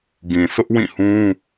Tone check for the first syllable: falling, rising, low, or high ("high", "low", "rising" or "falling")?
low